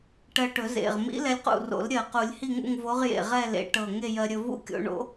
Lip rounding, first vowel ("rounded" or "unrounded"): unrounded